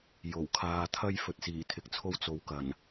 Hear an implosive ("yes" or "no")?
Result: no